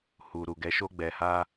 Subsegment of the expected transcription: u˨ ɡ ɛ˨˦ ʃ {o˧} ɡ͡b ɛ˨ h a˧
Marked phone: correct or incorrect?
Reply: correct